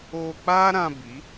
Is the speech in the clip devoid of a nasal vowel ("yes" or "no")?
no